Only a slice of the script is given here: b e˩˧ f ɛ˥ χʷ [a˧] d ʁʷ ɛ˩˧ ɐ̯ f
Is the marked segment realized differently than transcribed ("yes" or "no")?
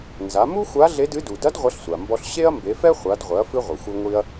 yes